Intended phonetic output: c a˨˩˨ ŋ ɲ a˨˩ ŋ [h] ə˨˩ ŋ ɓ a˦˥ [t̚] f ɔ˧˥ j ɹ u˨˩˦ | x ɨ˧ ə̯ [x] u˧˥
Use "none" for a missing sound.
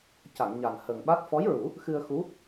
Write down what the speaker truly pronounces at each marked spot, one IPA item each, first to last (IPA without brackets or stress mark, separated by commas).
h, t̚, x